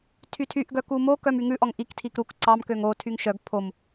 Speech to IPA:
tʰ y tʰ y ʔ ɡ œ k u m o k œ m y ŋ ʉ ʔ ɔ ŋ ʔ i k tʰ i k ɾ u k ǀ ɑ m k ø ŋ o tʰ y ŋ ʃ œ ɡ pʰ o m

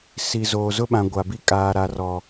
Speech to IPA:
s i˨ z oː˨ z ʊ˦ ɓ ã˨ ɡʷ a˨ b i˦ kʼ aː˨ ɾ a˨ r ɔ˨

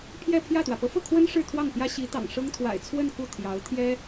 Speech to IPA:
pʰ j ɛ˥˧ pʰ j ä˥˩ t̪ w ä˩ p ɤ˧˥ f ɤ˥˩ kʰ w ə˥ n ʂ ɻ̩˥˧ t̪ʰ w ɑ˥˩ ŋ p j ä˥ ɕ i˧˥ t̪ ɑ̰˨˩ ŋ ʂ ɤ˥ ŋ t̪ʰ w a̰˨˩ ɪ̯ t͡sʰ w ə˥˧ n k u˥˩ t̪ʰ j ɑ˧˥ ʊ̯ t̪ʰ j ɛ˥

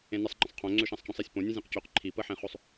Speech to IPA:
ẽ n ɪ sˤ ŋ͡ǃ ə̃ sˤ qʰ õ ŋ͡ǀ ø ʃ ã sˤ c ɔ̃ sˤ i sʲ p õ nʲ ẽ zʲ ẽ q c ø q ǃʰ i p ə ħ ẽ χ o sˤ

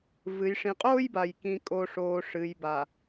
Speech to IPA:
v ɨ˨ j ʂ ĩ˨ qʼ oː˦ j b a˨ j k ĩ˨ kʼ o˨ ʂ oː˨ ʂ ɨ˨ j b a˨

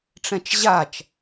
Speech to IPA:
ʈ͡ʂ ɛ̃ t͡ʃ ʑ a t͡ʃ

